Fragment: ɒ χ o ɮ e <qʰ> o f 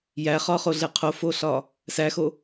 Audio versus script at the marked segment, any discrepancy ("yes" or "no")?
no